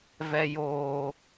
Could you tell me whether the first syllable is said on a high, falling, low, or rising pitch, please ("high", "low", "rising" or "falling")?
low